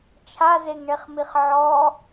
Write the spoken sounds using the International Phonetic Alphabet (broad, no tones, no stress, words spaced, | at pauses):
t͡ʃʰazeŋɳeχmiχ ʕɔ